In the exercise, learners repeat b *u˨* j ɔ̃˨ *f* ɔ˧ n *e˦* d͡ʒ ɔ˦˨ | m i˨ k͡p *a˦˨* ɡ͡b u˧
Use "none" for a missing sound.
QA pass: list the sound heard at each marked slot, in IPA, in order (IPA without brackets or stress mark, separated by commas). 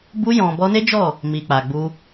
u˧, b, e˦, a˨